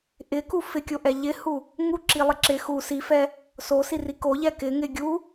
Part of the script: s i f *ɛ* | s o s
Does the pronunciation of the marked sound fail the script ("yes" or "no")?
no